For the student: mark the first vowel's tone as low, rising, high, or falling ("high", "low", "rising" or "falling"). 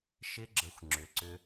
high